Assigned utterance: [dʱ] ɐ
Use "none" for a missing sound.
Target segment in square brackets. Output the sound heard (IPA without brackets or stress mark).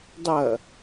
dˤ